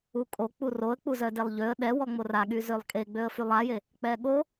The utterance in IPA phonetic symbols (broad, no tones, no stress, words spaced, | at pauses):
ukʼo k͡puroə̯ k͡puzœdelˠʎøə̯ ɗɛwɔŋ͡mor aɠy zølˠkʼeɡ͡bøə̯ fylˠaje | k͡pɛɠo